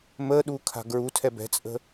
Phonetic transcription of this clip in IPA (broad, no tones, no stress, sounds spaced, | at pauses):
m əː ɗ uː kʰ a̤ ɡ ɹ u tʰ ɛ b ɛ̤ t͡sʼ ə̤